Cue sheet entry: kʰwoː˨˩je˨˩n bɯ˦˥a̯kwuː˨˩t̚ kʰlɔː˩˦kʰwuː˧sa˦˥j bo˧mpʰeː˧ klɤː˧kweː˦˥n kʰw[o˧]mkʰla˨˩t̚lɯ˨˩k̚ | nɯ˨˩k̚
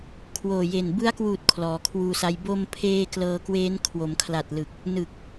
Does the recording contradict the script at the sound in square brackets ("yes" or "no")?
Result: yes